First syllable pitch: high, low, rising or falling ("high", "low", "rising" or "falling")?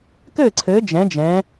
falling